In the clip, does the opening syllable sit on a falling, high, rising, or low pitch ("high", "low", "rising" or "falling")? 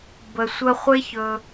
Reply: low